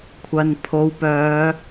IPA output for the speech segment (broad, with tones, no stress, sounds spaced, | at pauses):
kʷʰ ɐ˨ n pʰ o˨ w p œː˨˧